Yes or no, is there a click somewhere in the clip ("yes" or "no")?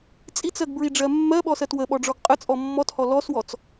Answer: no